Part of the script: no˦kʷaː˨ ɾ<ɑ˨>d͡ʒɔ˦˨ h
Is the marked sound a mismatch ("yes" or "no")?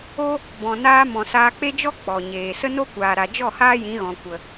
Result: yes